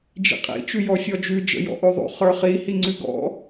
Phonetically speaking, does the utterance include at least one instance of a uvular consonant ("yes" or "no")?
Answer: yes